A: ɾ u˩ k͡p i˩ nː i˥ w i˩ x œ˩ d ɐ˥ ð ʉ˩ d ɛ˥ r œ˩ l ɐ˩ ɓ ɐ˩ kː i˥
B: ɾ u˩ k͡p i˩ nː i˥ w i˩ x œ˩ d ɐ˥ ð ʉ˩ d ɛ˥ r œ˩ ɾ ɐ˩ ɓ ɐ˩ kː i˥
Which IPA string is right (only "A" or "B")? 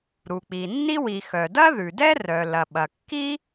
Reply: A